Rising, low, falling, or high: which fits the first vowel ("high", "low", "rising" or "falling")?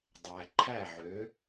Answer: low